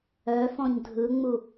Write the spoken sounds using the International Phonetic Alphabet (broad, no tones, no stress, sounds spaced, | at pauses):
œ f ɔ̃ ɲ dʱ ɯ ŋ͡m u